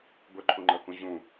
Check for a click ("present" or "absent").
present